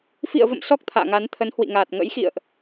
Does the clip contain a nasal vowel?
no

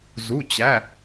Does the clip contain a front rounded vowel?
no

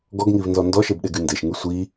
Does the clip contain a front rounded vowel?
yes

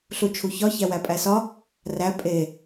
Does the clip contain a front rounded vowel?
no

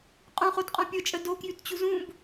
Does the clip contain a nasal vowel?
yes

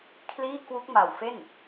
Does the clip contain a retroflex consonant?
no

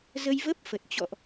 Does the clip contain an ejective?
no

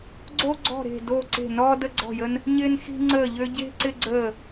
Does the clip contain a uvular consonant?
no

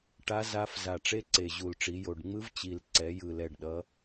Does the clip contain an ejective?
no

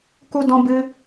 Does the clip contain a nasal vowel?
yes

